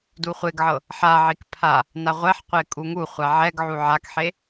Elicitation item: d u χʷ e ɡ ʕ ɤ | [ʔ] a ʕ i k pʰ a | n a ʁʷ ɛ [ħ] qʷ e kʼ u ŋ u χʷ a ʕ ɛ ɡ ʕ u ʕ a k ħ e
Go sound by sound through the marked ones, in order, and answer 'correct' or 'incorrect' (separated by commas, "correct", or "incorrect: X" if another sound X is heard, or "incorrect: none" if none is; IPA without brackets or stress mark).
incorrect: ħ, correct